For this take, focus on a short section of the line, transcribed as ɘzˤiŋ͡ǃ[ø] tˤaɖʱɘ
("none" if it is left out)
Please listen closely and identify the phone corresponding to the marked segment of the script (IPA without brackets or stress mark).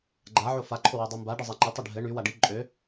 ɘ